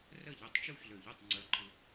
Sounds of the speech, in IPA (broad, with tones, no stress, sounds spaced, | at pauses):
r ə˥˨ ʎ i˧˩ tˤ t͡ʃ u˥˨ ç l ø˧˩ ʎ i˥˨ tˤ ŋ͡ǀ ə˞˧ ǃʰ ɯ˧